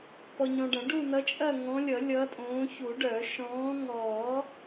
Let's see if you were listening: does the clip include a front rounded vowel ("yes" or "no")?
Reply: yes